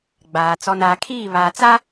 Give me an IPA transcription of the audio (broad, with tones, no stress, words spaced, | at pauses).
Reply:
ɡ͡baː˨ t͡sɔ˨naː˨kʰiː˦˨ βaː˨t͡sa˦